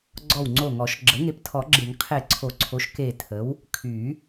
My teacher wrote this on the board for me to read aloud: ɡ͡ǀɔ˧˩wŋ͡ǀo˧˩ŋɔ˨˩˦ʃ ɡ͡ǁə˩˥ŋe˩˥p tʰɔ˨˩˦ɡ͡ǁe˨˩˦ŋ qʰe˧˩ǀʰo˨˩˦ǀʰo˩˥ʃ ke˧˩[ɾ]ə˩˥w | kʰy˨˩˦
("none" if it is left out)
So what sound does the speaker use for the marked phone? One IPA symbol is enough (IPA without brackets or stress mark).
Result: tʰ